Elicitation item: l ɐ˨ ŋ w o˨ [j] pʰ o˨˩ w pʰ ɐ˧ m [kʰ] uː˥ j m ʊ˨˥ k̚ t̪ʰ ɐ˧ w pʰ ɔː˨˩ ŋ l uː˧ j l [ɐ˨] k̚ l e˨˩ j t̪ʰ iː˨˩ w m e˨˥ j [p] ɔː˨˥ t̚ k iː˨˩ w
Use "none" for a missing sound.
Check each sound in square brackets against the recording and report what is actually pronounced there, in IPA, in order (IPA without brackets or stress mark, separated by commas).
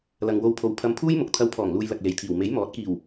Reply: w, pʰ, ɐ˨, m